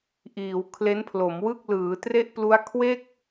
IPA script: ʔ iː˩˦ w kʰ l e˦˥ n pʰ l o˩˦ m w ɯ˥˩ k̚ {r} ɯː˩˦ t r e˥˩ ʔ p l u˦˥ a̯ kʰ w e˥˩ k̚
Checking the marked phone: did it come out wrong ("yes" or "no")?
yes